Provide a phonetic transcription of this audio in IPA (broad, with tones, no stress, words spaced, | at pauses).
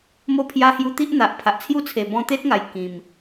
mo˦pʰja˦ hju˧t̪i˦ʔn̪a˨ʔ pʰa˨ʔt͡sʰju˥˧t͡sʰe˨˩ bɔ̃˧t̪e˦t̚ŋa˨˩j kĩ˨˩m